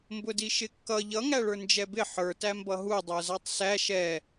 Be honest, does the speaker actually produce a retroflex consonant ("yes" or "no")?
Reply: yes